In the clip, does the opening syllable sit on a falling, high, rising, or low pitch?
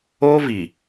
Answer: high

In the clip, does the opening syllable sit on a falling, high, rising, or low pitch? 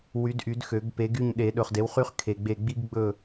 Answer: rising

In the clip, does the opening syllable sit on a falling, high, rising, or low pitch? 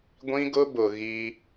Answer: high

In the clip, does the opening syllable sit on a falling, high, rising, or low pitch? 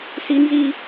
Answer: high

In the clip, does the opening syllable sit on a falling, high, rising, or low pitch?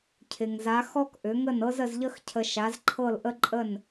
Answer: low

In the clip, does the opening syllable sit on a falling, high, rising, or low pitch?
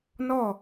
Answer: falling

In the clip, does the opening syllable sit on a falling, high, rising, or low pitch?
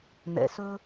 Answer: low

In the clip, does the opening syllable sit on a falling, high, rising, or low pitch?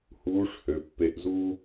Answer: rising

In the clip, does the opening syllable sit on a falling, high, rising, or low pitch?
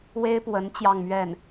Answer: high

